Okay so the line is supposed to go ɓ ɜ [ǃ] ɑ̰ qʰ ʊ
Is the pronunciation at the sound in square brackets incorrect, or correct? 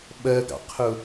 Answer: incorrect